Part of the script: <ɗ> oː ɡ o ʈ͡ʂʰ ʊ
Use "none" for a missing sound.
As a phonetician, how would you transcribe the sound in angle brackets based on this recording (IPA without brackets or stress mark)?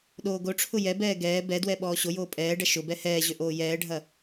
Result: ɗ